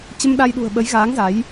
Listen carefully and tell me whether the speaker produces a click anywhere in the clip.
no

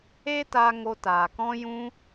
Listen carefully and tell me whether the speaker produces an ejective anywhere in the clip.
no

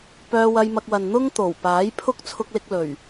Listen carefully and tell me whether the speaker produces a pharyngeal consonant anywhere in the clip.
no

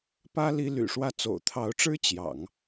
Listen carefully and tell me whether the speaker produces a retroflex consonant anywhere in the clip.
yes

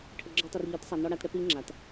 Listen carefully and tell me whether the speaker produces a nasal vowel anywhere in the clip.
no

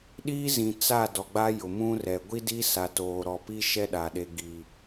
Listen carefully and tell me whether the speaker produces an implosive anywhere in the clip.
yes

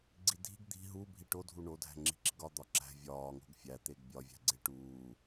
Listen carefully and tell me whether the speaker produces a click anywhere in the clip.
yes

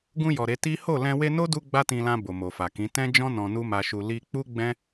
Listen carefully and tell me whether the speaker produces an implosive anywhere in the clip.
no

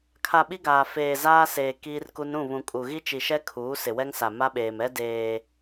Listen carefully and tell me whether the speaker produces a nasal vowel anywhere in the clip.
yes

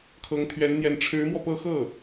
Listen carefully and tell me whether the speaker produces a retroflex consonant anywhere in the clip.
yes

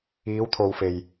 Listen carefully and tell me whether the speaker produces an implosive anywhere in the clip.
no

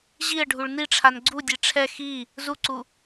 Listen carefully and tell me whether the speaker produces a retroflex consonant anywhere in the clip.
yes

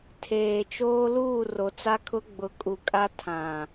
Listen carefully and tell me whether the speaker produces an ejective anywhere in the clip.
yes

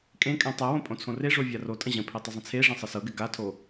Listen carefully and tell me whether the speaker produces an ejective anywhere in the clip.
yes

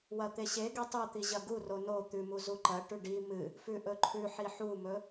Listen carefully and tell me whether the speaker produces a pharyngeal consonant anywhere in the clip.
yes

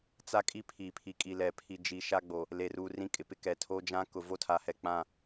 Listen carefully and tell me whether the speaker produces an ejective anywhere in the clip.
yes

